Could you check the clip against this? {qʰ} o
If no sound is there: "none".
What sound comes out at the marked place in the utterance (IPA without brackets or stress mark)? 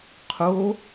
qʰ